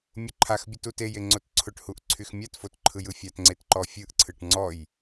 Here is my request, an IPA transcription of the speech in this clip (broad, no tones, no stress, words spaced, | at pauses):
mʲʊǃʰaxbʲɘt uteje ŋ͡ǀotǀʰʊʈhuʔ ǀʰyxmʲatfot ǃʰɯjɯfʲatŋ͡ǀet ǃɔfʲɯʔǀʰɯʈ ŋ͡ǀɔj